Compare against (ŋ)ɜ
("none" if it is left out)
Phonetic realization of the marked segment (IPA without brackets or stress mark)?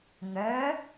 ŋ